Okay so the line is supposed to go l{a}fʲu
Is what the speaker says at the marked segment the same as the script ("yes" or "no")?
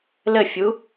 no